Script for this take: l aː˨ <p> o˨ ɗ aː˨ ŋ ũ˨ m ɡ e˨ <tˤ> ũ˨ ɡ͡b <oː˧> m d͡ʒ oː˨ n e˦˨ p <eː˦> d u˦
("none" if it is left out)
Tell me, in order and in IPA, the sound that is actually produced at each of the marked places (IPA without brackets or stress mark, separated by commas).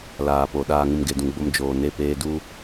p, d, o˧, eː˧